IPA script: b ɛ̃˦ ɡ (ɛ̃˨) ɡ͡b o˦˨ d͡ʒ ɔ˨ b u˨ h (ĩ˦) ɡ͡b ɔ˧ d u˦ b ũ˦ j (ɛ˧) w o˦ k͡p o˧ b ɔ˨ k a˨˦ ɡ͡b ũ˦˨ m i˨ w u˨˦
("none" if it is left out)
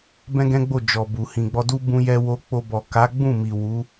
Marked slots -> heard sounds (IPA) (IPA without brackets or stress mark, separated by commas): ɛ̃˦, ĩ˨, ɛ˦